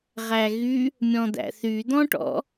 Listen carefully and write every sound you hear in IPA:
ʁ æ ɣ y | mʲ ɔ̃ d̪ æ̰ θ y d̪ ɔ̃ ʈ ɔ̰

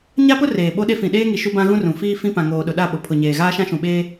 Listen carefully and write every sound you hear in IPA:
ɲ a˦ p ʊ˦ r eː˨ ɓ o˦ ɗ e˦ f ĩ˨ ɗ eː˦ ŋ i˨ ʃ u˦ b ã˦ ɣ ũ˦ r ũ˨ f iː˦ f ĩ˦ p ã˨ ŋ oː˨ ɗ ʊ˨ ɗ a˦˨ ɓ o˨ pʰ ʊ˨ ɲ eː˨ ɣ aː˦ ʃ ã˦ ʃ ũ˨ ɓ eː˦

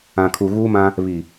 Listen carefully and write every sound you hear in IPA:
ã˨ kʰ u˨ ɣ uː˦ m ã˦ | β i˨

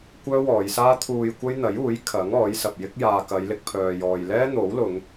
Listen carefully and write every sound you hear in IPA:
kʷ œː˥ w ɔː˨˧ j s aː˥ t̪ʰ uː˧ j kʷ ɐ˥ j n̪ ɐ˨˥ j uː˨˥ j kʰ ɐ˨˥ ŋ ɔː˨˥ j s ɐ˨ p̚ j ɪ˥ k̚ j aː˨ k ɐ˨˧ j l ɪ˧ k̚ pʰ œː˨ j ɔː˨ j l ɛː˥ n̪ o˨˥ w l ʊ˨˧ ŋ

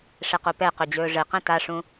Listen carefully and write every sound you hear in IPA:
ʂ ɛ q o p ɛ q ɵ d͡ʑ ɵː ʐ ɘ q ɛ̃ t a ʂ ũ

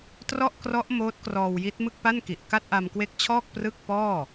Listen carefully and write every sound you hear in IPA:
t r ɔ˥˩ ʔ k r ɔ˦˥ ʔ m oː˦˥ t̚ k r ɔː˧ w j i˦˥ t̚ m ɯ˥˩ k̚ p a˥˩ n k i˨˩ ʔ k a˥˩ t̚ ʔ a˧ m k w e˦˥ k̚ t͡ɕʰ ɔː˥˩ k̚ p r ɯ˥˩ k̚ p ɔː˥˩

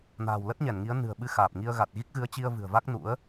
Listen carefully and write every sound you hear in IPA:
n a̤ː˨˩ w l ə˦˥ t̚ ɲ ɛ˧˩ n ŋ i˨˦ ə̯ n ɨ̤˨˩ ə̯ ɓ ɨ˧ x aː˨˩ p̚ ŋ i˧ ə̯ ɣ a˨˩ t̚ ɣ i˦˥ k̚ ɣ ɨ˨˦ ə̯ t͡ɕ i˧ ə̯ v ɨ̤˨˩ ə̯ v a˦˥ k̚ n ṵ˧˥ ə̯

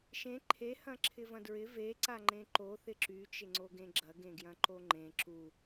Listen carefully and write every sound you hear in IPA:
ʃ ẽ ǃʰ e h ɐ̃ ǁʰ ɪ v ɐ̃ d ɹ ɪ v e ǀ a ŋ͡ǃ ẽ ǃ o θ ɪ ǁ y t͡ʃ ɪ ŋ͡ǀ o ɡ ẽ ɡ͡ǁ ɐ ɡ ẽ ɡ j ɐ̃ ǃ o ŋ͡ǃ ẽ ǁ u

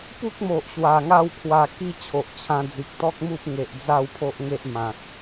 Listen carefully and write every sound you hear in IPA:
p u˦ k̚ m o˨ ʔ ɕ w a˨˩ ŋ a˥˧ w kʰ w a˧ k i˥˧ t͡ɕʰ o˨ ʔ t͡ɕʰ ã˧ d͡z i˨ k̚ t̪ ɔ˦ k̚ m u˦ p̚ ŋ e˨ ʔ d͡z a˥˧ w pʰ o˦ ʔ ŋ e˦ ʔ m ã˨ t̚

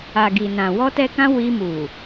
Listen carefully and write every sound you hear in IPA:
a˨ ɡ i˨ n ã˨ w ɔ˧ t ɛ˧ k ã˧ w i˧ m u˨

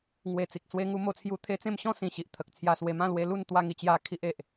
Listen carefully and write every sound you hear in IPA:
ŋ w e˨˩ t͡s i˨ k̚ s w e˧ ŋ u˧ m o˧ t͡sʰ j u˧ t̪ʰ e˧ t͡s ẽ˥˧ m ɕ ɔ̃˥˧ s ĩ˨˩ ɕ i˨ ʔ t̪ʰ ə˨ k̚ t͡sʰ j a˧ s w e˧ m ã˥˧ l w e˧ l u˥˧ n t̪ w a˥˧ ŋ i˧ t͡ɕ j a˧ kʰ i˦ ʔ e˨ ʔ

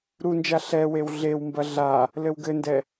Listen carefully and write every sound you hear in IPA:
ɾ u n d͡ʒ a ɬ ɛ w e w ɮ e w m b ɐ ɮ a | l ɘ w ɡ ɘ n d ɛ

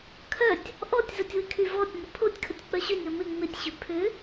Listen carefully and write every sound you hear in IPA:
kʰ œ tʲ | ʔ ɔ tʲ z ə tʲ w ɪ kʰ y v ɔ tʲ n ʏ pʰ o tʲ kʰ ə tʲ k͡p œ ɕ ʏ nʲ ɔ m ɪ ŋ͡m ɪ tʲ ɕ ʏ pʰ ʏ

